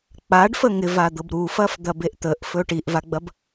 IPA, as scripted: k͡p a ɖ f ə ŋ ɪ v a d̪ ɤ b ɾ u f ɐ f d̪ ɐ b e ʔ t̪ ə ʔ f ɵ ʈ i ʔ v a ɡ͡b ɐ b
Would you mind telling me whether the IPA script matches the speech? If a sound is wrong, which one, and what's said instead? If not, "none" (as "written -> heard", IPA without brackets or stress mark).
none